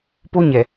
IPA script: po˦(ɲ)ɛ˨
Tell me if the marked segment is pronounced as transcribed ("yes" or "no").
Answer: yes